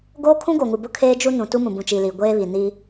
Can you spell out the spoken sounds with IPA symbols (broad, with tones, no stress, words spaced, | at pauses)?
ɡoː˦ kʰũ˦ɡo˨ŋu˨ bʊ˦kʰeː˦d͡ʒu˦ nũ˨ tu˦mũ˨bũ˨t͡ʃi˨ li˨ɡʷeː˦βi˨ ni˦